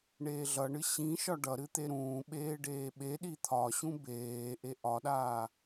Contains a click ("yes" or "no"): no